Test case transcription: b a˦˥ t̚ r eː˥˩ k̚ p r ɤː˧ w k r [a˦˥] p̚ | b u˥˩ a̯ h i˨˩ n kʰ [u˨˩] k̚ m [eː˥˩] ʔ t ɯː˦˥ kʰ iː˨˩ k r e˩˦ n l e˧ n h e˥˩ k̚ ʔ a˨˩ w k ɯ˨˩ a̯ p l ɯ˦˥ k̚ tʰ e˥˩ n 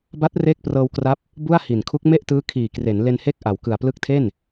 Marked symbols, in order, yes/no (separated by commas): yes, no, no